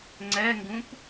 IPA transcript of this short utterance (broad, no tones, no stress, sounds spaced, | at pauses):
ŋ͡ǀ ɛ ŋ ɡ ũ p